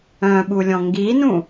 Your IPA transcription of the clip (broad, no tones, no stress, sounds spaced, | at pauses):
œ̃ ɓ u lʲ ɔ̃ ŋ ɡ i n ũ